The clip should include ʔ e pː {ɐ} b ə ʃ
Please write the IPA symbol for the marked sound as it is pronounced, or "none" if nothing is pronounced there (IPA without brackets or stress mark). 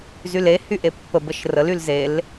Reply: ə